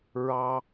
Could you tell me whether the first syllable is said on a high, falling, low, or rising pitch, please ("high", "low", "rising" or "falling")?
high